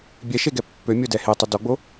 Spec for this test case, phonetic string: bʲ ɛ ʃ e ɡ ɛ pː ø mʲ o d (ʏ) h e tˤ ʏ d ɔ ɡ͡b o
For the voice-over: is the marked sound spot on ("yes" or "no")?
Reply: no